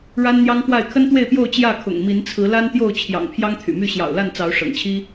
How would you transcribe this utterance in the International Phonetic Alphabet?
ɻ a˦ n n̪ j ɑ˦ ŋ k w a˥˨ ɪ̯ kʰ ə˦ n t̪ w e˥˨ ɪ̯ p j o˥˨ ʊ̯ t͡ɕ j ä˥˨ kʰ ʊ̰˨˩ ŋ m i˨˦ n t͡sʰ ɹ̩˨˦ l a˦ n t̪ j o˥˨ ʊ̯ t͡ɕʰ j ɑ̰˨˩ ŋ pʰ j ɑ˦ ŋ t̪ʰ y̰˨˩ m y˥˨ ɕ j ɑ̰˨˩ ʊ̯ l a˥˨ n t͡s ɑ˨˦ ʊ̯ ʂ ɤ̰˨˩ ŋ t͡ɕʰ i˦

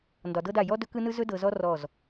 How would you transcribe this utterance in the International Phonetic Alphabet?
n d ɒ˨ d ɤ˦ d a˦˨ j ɔ˦ d ɵ˦ k ɯ˦ n ɯ˦ z ɵ˦ d ɤ˨ z ɔ˦ r ɔ˦˨ z

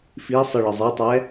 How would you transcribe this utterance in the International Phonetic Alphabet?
f i sˤ ɯ ɭ i zˤ ɛ tˤ ɛ

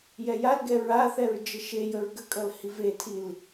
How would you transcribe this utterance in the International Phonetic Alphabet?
j ɛ j a l ɡ ɛ ɹ a θ ɛ ɹ d͡ʒ ə ʃ e j ə ɹ ɡ ə kʼ ʌ l h i v e tʰ i l

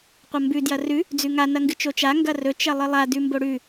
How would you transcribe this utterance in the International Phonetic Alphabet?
qʷ ɐ m b ʉ d j ɐ r ʉ | d͡z ʉ ŋ a n ɐ ŋ ɡ ɨ t͡ʃ o t͡ʃ a ŋ ɡ ɐ r ɵ t͡ʃ ɐ lˠ ɨ lˠ a d ʉ m b o ɽ ʉ

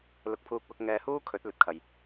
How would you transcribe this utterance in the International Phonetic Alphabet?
l ʊ˧ k̚ pʰ uː˧ k̚ w ʊ˧ k̚ ŋ ɛː˧ h uː˥ kʰ ɵ˨˥ t̚ l ɵ˨ t̚ kʰ ɐ˨ j

